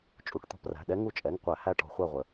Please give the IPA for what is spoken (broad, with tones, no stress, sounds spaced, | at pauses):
t͡ʃʼ u˩˧˩ ʈ t̪ ɔ̤˦˨ p r æ̤˩˧˩ ɗ ɛ˧˥ ŋ u˦˨ t͡ʃʼ ɛ˩˧˩ ŋ qʷ æ˧˩˧ h æ˦˨ ʈ ɔ̤˧˩˧ χʷ æ˦˨ ʁʷ ə˩